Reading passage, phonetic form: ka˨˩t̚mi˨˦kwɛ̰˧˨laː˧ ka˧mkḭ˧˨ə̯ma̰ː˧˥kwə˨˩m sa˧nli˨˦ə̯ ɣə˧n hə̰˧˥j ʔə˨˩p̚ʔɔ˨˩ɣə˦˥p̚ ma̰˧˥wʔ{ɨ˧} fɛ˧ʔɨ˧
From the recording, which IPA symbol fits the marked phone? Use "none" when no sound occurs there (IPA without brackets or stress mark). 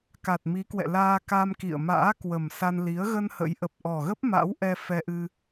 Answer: ɛ˧